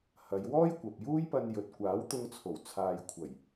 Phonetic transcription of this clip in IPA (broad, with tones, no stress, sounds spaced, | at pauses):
h ɐ˨˧ j w ɔː˥ j kʷ ɐ˨ p̚ j uː˥ j p ɐ˧ n j ɵ˨ t̚ kʷ aː˨˥ w t̪ ʊ˧ ŋ t͡sʰ o˨˩ w t͡sʰ aː˨ j kʷʰ ɐ˨˩ j